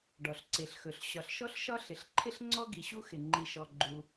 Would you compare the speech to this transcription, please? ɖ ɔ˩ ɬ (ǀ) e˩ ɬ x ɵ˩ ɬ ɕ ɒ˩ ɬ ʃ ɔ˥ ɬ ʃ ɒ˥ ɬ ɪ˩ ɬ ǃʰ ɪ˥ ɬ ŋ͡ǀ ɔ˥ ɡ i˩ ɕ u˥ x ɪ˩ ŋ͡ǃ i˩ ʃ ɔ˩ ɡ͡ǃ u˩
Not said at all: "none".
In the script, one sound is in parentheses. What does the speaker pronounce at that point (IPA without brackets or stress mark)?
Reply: ǀ